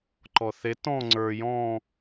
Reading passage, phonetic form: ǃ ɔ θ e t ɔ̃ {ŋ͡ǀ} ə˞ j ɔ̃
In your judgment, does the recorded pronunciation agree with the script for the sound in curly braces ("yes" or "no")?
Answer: yes